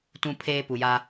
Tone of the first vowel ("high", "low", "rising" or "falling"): high